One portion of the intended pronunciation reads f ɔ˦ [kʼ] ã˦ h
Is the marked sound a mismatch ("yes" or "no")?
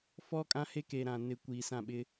no